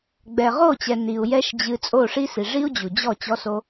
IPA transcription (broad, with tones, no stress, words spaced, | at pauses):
ɡ͡bɛ˨ʁo˦˨t͡ɕɛ˨ ni˨u̯ jɛ˦ʃd͡ʑɨ˧ t͡sʼo˦˨ʂi˦si˨ ʐi˦u̯d͡ʑu˨d͡ʑɔ˦˨ t͡ɕɔ˧so˧